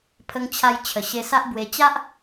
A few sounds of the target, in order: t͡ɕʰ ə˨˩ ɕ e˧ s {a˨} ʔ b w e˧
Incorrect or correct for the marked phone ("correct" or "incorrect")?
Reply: incorrect